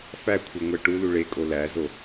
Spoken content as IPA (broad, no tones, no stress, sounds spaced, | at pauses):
f æ kʷʰ i ŋʷ æ ʈ u l u ɭ e kʼ o l æ z o